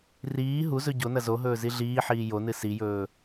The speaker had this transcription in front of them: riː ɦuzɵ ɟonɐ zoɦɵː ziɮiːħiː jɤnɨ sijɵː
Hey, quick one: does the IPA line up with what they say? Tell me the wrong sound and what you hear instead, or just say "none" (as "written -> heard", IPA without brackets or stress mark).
ɤ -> o